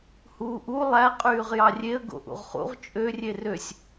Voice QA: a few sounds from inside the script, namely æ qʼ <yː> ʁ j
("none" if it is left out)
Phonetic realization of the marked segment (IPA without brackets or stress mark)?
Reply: yː